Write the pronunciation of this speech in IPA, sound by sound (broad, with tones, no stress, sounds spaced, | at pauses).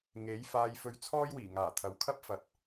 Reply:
ŋ e˨˥ j f aː˧ j f ɵ˧ ɥ t͡sʰ ɔː˥ j w iː˨˩ ŋ aː˨˩ t̪ʰ ɐ˨˧ w kʰ ɐ˥ p̚ f ɐ˨ t̚